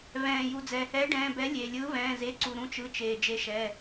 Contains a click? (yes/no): yes